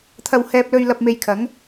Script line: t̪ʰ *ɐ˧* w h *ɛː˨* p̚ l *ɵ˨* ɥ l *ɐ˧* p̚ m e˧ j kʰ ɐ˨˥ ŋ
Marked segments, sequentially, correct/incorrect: correct, incorrect, incorrect, correct

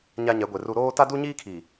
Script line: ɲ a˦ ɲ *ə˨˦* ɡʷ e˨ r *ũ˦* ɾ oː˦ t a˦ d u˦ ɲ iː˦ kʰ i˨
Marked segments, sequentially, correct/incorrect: incorrect, incorrect

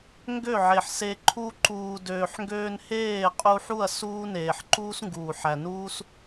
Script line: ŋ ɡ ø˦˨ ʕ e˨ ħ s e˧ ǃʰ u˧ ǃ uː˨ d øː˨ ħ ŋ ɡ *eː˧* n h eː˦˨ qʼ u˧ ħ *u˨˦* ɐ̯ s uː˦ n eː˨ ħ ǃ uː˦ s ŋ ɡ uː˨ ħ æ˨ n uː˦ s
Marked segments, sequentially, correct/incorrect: incorrect, incorrect

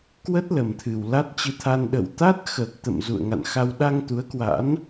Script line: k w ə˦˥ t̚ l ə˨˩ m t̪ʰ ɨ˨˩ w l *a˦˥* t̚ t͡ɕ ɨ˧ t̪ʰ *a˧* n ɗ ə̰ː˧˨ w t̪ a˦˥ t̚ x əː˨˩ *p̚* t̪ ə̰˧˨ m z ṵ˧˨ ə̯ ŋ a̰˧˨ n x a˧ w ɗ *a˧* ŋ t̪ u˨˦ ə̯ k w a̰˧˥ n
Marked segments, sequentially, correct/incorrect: correct, correct, incorrect, correct

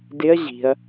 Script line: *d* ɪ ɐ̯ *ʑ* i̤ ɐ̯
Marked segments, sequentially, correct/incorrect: correct, correct

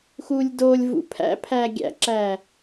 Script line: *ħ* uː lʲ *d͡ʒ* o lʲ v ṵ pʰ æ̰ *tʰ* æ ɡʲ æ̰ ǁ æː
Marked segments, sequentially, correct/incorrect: incorrect, incorrect, incorrect

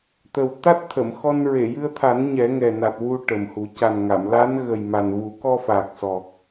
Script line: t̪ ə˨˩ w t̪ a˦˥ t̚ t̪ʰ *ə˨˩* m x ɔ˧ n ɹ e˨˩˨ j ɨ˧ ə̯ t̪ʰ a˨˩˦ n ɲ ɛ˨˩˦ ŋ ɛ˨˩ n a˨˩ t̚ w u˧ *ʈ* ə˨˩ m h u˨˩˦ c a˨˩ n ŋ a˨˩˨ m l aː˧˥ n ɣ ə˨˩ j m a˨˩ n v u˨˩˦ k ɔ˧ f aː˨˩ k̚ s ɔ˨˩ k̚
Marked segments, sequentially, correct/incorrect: incorrect, correct

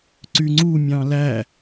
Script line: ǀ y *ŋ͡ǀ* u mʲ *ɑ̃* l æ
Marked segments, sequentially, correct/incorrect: correct, correct

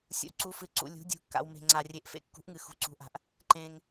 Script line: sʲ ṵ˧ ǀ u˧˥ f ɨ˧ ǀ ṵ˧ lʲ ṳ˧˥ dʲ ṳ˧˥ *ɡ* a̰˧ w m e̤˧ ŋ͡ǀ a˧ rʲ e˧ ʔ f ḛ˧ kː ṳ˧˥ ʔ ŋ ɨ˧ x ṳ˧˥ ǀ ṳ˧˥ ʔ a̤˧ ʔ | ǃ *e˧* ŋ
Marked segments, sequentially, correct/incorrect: incorrect, incorrect

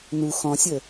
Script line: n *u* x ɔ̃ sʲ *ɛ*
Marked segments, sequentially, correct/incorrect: correct, incorrect

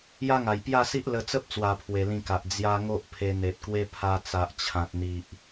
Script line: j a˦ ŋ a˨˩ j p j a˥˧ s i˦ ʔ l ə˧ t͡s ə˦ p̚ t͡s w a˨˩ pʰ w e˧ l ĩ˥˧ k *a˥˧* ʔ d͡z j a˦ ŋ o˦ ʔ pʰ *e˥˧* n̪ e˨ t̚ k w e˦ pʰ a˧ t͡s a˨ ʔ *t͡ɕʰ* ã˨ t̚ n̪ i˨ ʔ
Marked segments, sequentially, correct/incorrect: incorrect, incorrect, correct

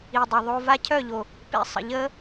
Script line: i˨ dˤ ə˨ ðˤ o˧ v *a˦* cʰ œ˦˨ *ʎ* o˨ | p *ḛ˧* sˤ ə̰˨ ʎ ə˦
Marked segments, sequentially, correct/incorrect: correct, correct, correct

